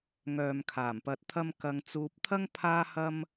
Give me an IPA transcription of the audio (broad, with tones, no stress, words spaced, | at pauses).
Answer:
ŋœː˨mkʰaː˨˩mpɐ˧t̚t̪ʰɐ˥m kɐ˧ŋt͡suː˧p̚t̪ʰɐ˥ŋ pʰaː˥hɐ˥m